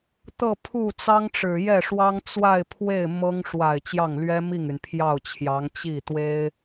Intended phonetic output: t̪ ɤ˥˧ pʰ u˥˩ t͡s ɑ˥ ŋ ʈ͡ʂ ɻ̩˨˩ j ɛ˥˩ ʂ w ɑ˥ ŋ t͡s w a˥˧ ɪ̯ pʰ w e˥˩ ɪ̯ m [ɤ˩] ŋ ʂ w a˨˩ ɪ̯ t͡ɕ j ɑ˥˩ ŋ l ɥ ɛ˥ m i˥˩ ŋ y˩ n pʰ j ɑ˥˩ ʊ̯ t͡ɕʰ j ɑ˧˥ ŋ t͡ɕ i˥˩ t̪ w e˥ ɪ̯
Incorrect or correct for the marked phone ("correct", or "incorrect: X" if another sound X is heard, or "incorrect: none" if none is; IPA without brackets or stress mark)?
incorrect: ɤ˥